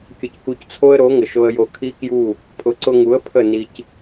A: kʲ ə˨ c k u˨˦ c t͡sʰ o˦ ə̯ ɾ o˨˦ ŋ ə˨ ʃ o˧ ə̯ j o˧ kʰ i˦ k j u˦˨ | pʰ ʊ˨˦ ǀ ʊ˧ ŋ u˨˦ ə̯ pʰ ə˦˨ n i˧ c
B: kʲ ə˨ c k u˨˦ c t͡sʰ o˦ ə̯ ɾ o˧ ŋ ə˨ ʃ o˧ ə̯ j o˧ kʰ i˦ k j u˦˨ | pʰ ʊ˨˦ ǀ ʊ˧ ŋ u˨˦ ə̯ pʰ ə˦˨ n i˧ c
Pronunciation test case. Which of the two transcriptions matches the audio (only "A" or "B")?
A